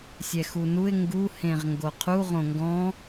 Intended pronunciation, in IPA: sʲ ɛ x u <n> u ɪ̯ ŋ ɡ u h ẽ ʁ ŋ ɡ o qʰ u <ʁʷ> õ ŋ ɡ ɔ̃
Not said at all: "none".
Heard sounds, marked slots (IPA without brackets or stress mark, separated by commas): n, ʁ